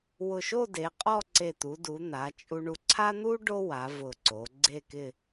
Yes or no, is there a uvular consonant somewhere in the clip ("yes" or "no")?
yes